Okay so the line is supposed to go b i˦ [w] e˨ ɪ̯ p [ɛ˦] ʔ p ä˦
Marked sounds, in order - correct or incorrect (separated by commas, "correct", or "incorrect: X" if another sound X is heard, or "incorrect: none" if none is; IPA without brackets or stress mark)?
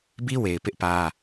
correct, incorrect: ɪ˦